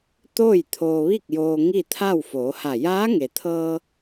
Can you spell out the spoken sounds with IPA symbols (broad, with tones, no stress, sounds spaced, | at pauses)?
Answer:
t̪ oː˥˨ j t̪ʰ oː˧ ʋ i˥˨ k̚ j oː˧ ŋ i˥˨ t̪ʰ a˥˨ w f oː˩˧ h a˧˩ j aː˧˥ ŋ e˩ t̪ʰ ɤː˧